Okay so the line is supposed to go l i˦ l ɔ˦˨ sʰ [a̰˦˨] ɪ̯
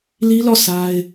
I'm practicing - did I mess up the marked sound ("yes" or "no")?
yes